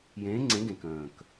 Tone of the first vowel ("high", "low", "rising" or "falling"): rising